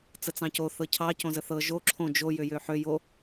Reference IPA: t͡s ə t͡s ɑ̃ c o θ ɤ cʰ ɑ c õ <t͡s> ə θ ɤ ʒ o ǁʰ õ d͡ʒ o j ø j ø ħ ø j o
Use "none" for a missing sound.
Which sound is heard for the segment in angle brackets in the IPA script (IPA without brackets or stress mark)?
z